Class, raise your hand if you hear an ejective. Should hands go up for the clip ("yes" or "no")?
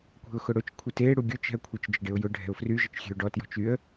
no